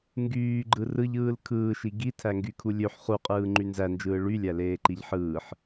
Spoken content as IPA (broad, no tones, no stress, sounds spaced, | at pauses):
ŋ ɡ yː ɡ͡ǃ ɯ r ɯ ʎ ɯː l kʰ ɯː ʃ i ɡ i tʰ æ ŋ ɡ y kʰ u lʲ ø ħ χ u qʼ ɯː ŋ͡ǃ y n z æ n d͡ʒ ɯː ɭ y lʲ æ l eː ǃ i ʎ ħ ɯː ħ